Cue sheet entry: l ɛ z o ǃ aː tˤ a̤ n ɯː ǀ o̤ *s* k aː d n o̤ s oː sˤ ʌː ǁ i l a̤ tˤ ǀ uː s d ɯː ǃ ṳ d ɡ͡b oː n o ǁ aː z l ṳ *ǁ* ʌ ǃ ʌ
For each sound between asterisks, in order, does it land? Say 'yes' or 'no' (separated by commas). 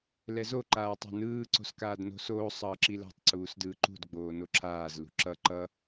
yes, yes